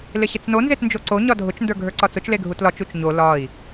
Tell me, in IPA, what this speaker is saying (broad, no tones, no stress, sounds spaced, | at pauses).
l ɪ ɕ ɪ t͡s n o n z e t n d͡ʒ o ǀ o ɲ ɒ dʱ ʊ t͡ʃ n d ə˞ ɡʱ ə˞ ǀ ɒ t͡s ʊ t͡ʃ l e ɡʱ u t l ɒ t͡ʃ u t͡ʃ ɲ o l ɒ i̯